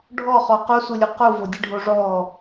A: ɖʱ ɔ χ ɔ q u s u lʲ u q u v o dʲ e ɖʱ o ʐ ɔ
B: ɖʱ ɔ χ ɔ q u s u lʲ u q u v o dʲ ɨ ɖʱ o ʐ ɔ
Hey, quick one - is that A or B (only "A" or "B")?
B